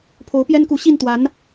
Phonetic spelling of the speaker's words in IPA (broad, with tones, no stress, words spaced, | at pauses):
pʰo˧˥ʊ̯pjɛ˥nku˧˥ ɕi˥˩nt̪wa˧˥n